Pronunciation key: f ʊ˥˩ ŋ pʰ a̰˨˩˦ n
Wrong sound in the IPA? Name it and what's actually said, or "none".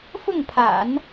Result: none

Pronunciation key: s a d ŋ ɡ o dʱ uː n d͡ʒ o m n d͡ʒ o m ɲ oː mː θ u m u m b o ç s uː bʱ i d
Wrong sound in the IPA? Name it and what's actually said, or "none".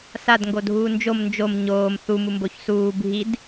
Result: mː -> m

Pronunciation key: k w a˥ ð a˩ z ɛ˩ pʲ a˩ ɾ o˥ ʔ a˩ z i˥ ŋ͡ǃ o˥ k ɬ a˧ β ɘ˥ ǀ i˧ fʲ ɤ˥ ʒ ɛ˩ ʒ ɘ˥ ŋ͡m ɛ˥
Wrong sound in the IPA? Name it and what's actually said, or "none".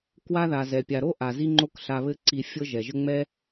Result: none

